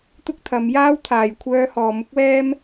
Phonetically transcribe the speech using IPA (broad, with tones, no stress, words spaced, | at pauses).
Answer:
t̪ʊ˥k̚ t̪ʰɐ˨˧mjaː˥wt̪ʰaː˨j kʷʰœː˥hɔː˧ mʊ˥k̚wɛː˥m